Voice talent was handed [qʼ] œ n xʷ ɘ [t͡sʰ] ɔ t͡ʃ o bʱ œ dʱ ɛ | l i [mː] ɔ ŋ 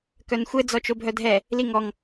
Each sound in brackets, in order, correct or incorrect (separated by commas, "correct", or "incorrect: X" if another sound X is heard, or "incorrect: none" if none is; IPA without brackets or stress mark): incorrect: k, incorrect: d͡z, incorrect: ŋ